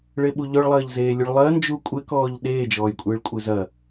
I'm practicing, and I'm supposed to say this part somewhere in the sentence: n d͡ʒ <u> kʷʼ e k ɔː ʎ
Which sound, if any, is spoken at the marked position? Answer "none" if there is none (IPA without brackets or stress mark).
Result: u